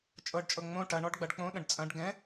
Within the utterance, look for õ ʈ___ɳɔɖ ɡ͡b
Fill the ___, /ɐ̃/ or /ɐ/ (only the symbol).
ɐ